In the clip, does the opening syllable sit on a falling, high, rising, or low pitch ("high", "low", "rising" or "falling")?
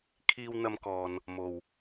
high